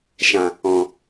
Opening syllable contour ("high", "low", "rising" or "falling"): low